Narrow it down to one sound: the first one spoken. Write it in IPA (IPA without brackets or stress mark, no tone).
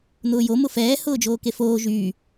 n̪